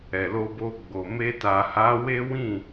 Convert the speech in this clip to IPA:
ɛ˨ l o˧ b o˧ ɡ͡b o˨ m e˧ t a˨ h a˨˦ w e˦ w ĩ˦˨

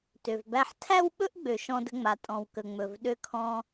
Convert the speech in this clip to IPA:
t ø˨ v b æ˦ ħ tʰ æ˦ w ɓ ɵ˦ ʔ ɡ͡b ø˨ ʃ ɔ̃˦ d ə̤˦ ŋ͡m a˨ tʼ ɔ̃˨ w k ə˨ ŋ͡m ɵ˨ v ɗ ø˦ kʰ ɔ̃˦

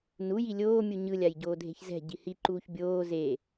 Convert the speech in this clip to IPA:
n u j i lʲ oː mʲ u ɲ ɯ lʲ a j ɟ oː dʱ e̤ ç z ɛ̤ ɟ i h i ǃ uː ç bʲ oː z e

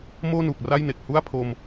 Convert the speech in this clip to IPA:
m oː˥˩ n uː˨˩ k̚ r a˥˩ j n e˨˩ k̚ h u˥˩ a̯ pʰ o˧ m

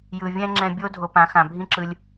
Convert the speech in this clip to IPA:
j ɯ˨ vʲ ɛ̃˧ ŋ͡ǁ ɛ̃˧ bʲ o˦ dʱ o˧ p ã˨˦ x ã˨ bʱ ĩ˦ ǁ ɯ˧ lʲ

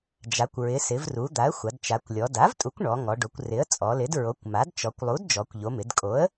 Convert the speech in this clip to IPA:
d͡ʒ a˩˧ kʷ ɹ ɪ˩˧ s ɪ˩˧ v r u˩˧ d̪ a˩˥ ə̯ xʷ a˩˧ d t͡ʃ a˩˧ kʷ lʲ ɔ˩˧ d a˩˥ v tʼ u˩˥ kʷ ɳ ɔ˩˧ ŋ ɔ˩˧ ɖ o˩˧ kʷ r ɪ˩˥ ə̯ t͡sʼ ɔ˩˧ l ɪ˩˥ d ɹ o˩˥ kʷ m a˩˥ d t͡ʃ ɔ˩˧ kʷ lˠ u˩˥ d d͡ʒ ɔ˩˧ kʷ ʎ o˩˧ m ɪ˩˧ d kʼ o˩˥ ə̯

